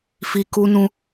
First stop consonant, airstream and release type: plain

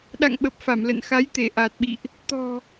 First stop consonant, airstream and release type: implosive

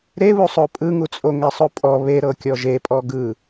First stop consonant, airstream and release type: ejective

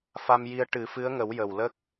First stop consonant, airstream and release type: plain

